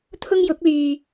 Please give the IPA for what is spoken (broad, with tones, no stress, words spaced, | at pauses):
t̪ʰʊ˥ŋjʊ˨˥k̚lyː˧